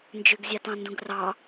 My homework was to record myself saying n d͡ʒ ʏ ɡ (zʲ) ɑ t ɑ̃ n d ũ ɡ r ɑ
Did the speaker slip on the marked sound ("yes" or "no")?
no